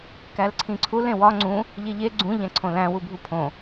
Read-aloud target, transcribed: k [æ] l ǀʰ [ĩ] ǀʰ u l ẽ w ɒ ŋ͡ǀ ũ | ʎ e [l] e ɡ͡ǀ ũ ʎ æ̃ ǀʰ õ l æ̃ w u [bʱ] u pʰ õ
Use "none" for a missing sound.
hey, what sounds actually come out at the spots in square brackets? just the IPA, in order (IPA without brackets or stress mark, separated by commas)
æ, ĩ, ʎ, bʱ